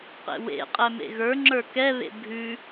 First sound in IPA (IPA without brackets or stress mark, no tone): q